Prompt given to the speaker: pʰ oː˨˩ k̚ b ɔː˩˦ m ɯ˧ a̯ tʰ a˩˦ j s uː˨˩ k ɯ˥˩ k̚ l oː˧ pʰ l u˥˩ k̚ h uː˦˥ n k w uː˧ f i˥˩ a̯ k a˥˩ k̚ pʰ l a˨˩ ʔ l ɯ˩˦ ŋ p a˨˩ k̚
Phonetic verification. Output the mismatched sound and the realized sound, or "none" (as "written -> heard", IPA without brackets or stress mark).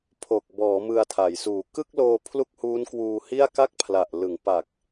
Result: f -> h